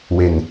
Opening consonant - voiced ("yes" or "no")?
yes